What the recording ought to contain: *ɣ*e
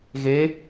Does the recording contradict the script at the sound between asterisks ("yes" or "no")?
no